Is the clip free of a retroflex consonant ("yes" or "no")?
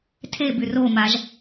yes